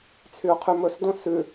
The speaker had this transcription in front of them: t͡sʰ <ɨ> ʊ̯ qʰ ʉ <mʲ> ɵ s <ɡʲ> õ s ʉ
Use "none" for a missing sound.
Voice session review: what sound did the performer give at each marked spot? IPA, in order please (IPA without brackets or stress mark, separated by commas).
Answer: y, m, d